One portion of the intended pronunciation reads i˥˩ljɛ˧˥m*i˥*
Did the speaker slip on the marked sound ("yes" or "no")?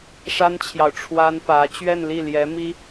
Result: no